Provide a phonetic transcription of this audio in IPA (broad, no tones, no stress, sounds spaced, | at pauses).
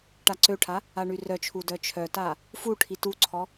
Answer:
ʈ a ǀ ø ʈʰ a | a ɳ y r œ t͡ʃʰ u d œ t͡ʃʰ œ t a | f u ʈʰ i t u ǀʰ ɔ